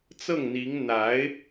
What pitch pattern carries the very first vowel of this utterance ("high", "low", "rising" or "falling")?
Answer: falling